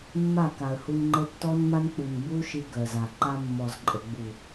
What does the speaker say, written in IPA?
mː a˦˨ k a˨ ə̯ h u˧ n ŋ͡ǃ ə˧ tː ɔ˦ n m a˦ n k͡p u˨ n b u˦ ʃ i˧ ɡ ɜ˨ z a˨ ǃ a˦ mː ɔ˨ z ǃʼ ə˨ ɡ͡b u˨

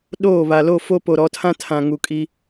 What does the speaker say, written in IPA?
ɗ oː˦˨ β a˨ l o˦˨ f o˦ p o˨ ɾ ɔ˨˦ tʰ ã˦ tʰ ã˨ ŋ u˨ kʼ i˦

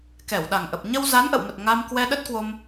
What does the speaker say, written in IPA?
k ɛ˧˩ w ɗ a˨˩ ŋ ʔ ə˨˩ p̚ ɲ ə˧ w z a˨˦ n ʔ ə̰˧˨ w m ə˨˩ t̚ ŋ a˧ m k w ɛ˧ ɗ ə˦˥ t̚ k w o˧ m

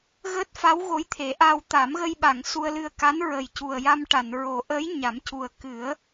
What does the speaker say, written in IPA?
ɣ əː˦˥ t̚ f a˧˥ w ɣ o˧˥ j t̪ʰ e˨˩˦ ʔ a˧ w t̪ a˨˩˦ m ɣ ə˧ j ɓ a˨˩˨ ŋ s u˧ ə̯ l ɨ˧ ə̯ k a˧˥ n ɹ ə˨˩ j c u˨˩ ə̯ j a˧ m ʈ a˨˩˨ n ɹ o˨˩˦ ʔ əː˧˥ j ɲ a˨˩˦ m c u˨˩ ə̯ k ɨ˨˩˦ ə̯

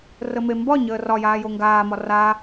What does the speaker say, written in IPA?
r ə m e m b ɒ ɲ əː r ɒ j aː j o ŋ ɡ aː m ɒ r a

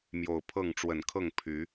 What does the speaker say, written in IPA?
m j o˨˩ ʊ̯ pʰ ɤ˥˨ ŋ ʈ͡ʂ w ə˨˩ n kʰ ɤ˥˨ ŋ pʰ y˨˦

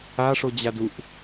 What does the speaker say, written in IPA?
a ʂ o d͡ʑ a d u ʔ

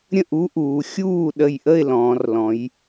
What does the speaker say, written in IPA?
ɾʲ ə̃˥˩ ʔ u˦˥ ʔ uː˩˧ xʲ uː˥˩ ɗ ə˧˩ j ʔ ə˥˩ ɪ̯ l ɔ̃ː˩˧ r l ɔ̃˩˧ j

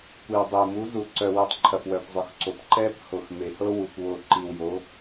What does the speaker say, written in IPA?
kʷ i˨ w dˤ u˨ m u˨˦ z u˨ ǀ œ˨ w u˨ tˤ ǃʰ ɐ˨ f w œ˨ p zˤ ɵ˨ x ǀ o˨ p ǃ ɛ˦ p h o˨ x m e˨ h ɤ˦ w u˨ kʷ w o˨ ǃ i˨ w j o˨˦

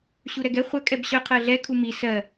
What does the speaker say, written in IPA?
ɕ u ɾ ɛ ɡ ɛ χʷ œ kʼ ɛ b ɕ œ qʰ ɜ ɮ ɛ kʰ u m i s ɜ

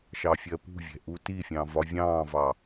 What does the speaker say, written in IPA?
ʃ ɑ fʲ ɜ p ṳ vʲ ɛ̤ ʔ u t i fʲ ɑ̃ v ɒ vʲ ɑ̃ː v ɑ

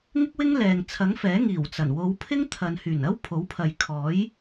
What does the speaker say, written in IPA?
ŋ ɪ˥ k̚ w ɪ˥ ŋ l ɛː˨ ŋ t͡sʰ ɐ˨˥ ŋ f ɛː˨˥ ŋ iː˨˩ w t͡s ɐ˨˩ n w o˨˧ w pʰ ɪ˥ ŋ t̪ʰ ɐ˨ n h yː˨˩ n ɐ˥ w pʰ o˨˥ w pʰ ɐ˨ j kʰ ɔː˨˥ j

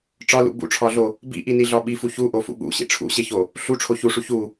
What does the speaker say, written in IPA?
ʈ͡ʂ ɒ l ṵ b ṵ ʈ͡ʂʰ ɒ ɮ o | b ḭ ʔ i n i ɮ ɒ ɓ i f u ç u ʔ o f ṵ ɠ ṵ ɕ ḭ ʈ͡ʂʰ ṵ ɕ e ç o | ɬ u ʈ͡ʂʰ o ç u ʂ u ç u

